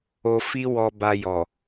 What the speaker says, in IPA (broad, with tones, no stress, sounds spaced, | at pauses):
o˧ f i˦ w ɔ˧ b a˧ j ɔ˨